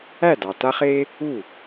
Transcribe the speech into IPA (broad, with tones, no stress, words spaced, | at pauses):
æ˥˩dɑ˨ ta˥χe˥ | u˥˩